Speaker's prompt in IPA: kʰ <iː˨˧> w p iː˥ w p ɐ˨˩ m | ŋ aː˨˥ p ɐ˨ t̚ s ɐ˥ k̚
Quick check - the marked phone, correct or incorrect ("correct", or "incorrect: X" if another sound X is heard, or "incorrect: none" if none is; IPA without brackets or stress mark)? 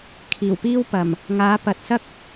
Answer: incorrect: iː˨˩